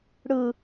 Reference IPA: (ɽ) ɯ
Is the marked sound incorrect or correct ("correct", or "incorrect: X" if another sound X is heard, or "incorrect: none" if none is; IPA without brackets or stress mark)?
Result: correct